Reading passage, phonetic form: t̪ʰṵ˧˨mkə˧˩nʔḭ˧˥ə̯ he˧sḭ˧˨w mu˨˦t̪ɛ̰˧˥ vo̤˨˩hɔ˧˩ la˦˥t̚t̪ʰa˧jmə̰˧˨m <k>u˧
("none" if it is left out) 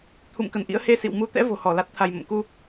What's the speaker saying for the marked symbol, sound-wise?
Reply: k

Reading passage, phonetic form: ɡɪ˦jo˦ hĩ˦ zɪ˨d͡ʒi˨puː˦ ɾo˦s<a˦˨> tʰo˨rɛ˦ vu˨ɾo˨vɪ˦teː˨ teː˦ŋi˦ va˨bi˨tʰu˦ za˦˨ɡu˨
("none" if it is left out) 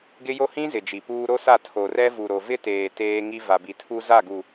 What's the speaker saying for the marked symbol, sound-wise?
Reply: a˦˨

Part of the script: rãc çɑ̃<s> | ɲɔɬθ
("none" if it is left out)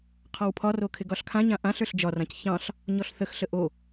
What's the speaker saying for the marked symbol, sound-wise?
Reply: ɬ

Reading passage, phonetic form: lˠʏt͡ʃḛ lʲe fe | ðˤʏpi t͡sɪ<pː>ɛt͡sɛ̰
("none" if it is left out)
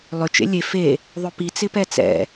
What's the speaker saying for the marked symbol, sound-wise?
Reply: p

